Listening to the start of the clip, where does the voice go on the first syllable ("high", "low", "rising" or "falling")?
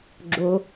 low